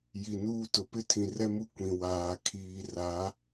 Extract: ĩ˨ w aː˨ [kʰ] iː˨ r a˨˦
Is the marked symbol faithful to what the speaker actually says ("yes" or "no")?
yes